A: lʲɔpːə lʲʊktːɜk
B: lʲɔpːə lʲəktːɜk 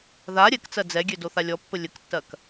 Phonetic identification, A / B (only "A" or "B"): B